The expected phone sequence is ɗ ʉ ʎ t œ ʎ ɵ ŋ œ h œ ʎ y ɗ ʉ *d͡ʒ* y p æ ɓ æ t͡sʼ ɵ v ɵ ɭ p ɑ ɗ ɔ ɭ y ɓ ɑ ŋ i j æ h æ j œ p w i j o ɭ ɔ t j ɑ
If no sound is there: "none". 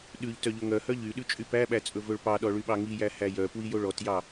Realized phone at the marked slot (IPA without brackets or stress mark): t͡ʃʼ